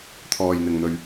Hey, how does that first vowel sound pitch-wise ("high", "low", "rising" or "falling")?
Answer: low